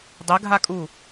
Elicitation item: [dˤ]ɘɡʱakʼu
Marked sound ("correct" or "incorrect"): correct